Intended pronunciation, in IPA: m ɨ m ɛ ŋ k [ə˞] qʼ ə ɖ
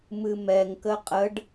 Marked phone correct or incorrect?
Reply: incorrect